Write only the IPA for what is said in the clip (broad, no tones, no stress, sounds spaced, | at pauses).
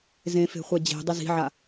z ẽ f e̤ χʷ ɛ d͡ʑ e̤ dˤ ɪ z i̤ ʕ a